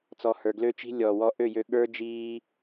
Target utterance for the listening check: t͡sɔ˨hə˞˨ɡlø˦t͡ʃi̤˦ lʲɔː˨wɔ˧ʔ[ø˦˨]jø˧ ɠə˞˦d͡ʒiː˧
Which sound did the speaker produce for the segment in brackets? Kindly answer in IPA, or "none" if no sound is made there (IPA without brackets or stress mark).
ø˦˨